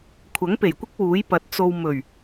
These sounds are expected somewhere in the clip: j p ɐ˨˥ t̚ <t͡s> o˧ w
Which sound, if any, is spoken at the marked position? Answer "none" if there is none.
t͡s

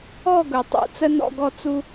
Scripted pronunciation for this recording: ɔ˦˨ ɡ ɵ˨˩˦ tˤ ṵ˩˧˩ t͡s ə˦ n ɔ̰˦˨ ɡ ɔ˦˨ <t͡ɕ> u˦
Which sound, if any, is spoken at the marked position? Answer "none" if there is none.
t͡s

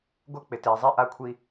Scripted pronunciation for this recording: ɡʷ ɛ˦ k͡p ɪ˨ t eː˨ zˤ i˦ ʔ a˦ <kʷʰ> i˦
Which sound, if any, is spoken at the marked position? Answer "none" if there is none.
kʷʰ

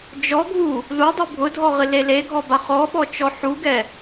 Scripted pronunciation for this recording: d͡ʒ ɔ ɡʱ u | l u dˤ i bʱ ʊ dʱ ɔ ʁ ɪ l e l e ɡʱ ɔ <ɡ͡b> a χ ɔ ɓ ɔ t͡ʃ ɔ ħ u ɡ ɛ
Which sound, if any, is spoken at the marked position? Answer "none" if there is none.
b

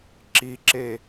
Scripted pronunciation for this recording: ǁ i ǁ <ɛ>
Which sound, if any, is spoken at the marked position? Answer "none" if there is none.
e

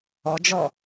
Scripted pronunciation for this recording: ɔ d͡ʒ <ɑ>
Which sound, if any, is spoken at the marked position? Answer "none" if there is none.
ɔ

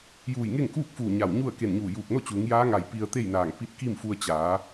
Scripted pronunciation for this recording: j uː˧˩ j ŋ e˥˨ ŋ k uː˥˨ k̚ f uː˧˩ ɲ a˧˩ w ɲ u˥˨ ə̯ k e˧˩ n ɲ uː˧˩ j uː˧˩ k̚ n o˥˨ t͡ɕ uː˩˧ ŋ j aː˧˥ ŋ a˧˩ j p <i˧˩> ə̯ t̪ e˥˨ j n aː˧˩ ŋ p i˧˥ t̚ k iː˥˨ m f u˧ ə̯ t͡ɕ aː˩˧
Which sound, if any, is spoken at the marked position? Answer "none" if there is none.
i˧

